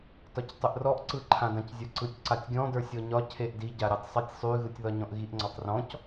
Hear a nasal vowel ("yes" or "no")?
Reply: yes